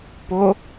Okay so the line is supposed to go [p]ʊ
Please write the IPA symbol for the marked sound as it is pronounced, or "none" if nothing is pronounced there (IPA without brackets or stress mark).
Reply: p